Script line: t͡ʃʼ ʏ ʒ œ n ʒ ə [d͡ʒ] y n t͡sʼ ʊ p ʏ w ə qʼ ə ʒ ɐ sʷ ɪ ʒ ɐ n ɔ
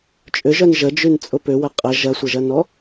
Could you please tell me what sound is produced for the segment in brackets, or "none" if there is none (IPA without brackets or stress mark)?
d͡ʒ